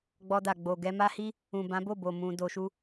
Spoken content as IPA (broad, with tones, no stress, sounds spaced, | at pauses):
ɡ͡b ɔ˧ d a˨ ɡ͡b o˨ ɡ ɛ˧ m a˦ h i˦ | ũ˨ b ã˨˦ b o˦˨ b o˨ m ũ˧ d o˧ ʃ u˦